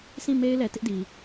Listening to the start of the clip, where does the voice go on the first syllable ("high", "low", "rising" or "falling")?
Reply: falling